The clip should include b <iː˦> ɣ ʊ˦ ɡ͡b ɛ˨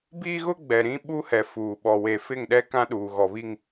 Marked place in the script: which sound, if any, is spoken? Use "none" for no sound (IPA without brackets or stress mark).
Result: iː˦